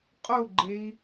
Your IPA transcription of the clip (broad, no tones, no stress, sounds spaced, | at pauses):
qʼ o ɡ͡ǃ e i̯